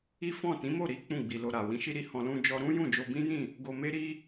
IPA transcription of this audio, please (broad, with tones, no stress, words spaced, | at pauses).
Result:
i˦fɔ̃˦˨ tĩ˨˦mo˦˨ɾi˨˦ k͡pũ˦˨ɡ͡bi˨lo˧ɾa˨ wĩ˨˦ʃi˦ ɾi˧hɔ̃˧ lũ˧d͡ʒɔ˧ ɾũ˦jũ˦˨ d͡ʒo˧bĩ˦jĩ˦˨ | ɡo˧me˦ɾi˦